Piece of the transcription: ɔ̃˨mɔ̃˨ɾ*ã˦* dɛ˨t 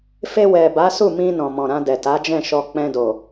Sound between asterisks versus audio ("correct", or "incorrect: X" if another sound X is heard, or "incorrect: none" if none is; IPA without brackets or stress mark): incorrect: ã˧